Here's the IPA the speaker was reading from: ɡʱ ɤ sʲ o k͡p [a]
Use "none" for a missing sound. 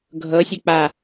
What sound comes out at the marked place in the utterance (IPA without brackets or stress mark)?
a